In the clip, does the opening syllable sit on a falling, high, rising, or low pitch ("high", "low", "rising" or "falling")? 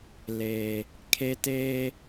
high